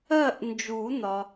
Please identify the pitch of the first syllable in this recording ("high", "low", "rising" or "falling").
falling